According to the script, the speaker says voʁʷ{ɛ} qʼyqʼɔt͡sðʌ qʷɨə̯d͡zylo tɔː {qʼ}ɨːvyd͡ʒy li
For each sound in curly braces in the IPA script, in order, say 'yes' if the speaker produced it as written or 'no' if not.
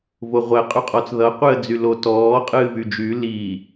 yes, yes

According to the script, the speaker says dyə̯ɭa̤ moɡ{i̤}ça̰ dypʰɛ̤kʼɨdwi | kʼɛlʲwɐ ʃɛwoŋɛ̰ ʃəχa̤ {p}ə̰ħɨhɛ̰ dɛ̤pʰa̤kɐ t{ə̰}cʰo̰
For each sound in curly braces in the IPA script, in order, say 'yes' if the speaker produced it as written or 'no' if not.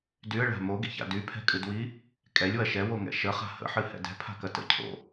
no, no, yes

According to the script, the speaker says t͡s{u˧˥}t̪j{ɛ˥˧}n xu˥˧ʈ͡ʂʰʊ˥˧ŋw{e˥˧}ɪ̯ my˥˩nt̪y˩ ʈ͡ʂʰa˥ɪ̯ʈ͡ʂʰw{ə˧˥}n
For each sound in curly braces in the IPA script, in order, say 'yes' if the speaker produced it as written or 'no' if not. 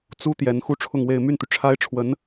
no, no, yes, yes

